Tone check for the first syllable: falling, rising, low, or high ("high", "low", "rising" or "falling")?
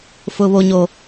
low